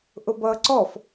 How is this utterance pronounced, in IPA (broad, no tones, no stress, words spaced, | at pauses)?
ʔʊbʌːǀɔf